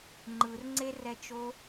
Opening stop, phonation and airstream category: click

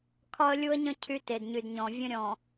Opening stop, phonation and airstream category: aspirated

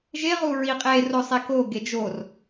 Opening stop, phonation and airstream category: ejective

